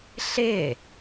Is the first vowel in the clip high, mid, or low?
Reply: high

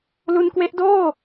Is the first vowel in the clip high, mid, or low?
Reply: high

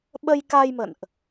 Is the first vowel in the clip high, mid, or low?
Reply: mid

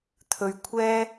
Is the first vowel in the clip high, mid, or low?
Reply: mid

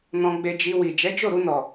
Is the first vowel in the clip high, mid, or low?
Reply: mid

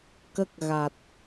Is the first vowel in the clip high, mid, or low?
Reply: mid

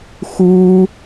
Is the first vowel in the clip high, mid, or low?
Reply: high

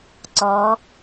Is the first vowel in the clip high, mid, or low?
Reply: mid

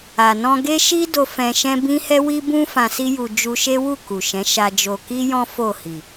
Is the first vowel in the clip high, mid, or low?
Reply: low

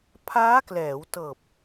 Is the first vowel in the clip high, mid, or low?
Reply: low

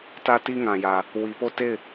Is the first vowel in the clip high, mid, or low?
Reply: low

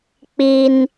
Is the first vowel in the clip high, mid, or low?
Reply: high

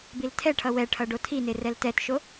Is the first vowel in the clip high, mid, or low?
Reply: high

